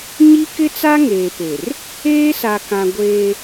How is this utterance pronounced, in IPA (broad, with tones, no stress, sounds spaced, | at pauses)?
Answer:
ɲ i˦ k ɪ˦ t͡s a˦ ŋ eː˨ p e˨ r | eː˦ s a˨ k ã˨ ɡʷ eː˦